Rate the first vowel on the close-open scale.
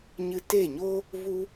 close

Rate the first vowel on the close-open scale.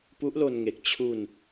close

